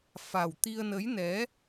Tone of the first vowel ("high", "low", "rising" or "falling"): low